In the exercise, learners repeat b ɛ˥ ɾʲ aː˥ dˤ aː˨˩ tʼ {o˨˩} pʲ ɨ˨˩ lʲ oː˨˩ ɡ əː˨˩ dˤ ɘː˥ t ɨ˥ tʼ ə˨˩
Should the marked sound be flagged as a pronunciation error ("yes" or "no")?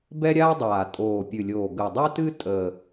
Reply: yes